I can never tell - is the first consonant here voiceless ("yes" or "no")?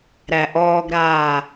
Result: no